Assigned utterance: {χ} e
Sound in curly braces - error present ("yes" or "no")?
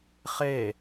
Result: no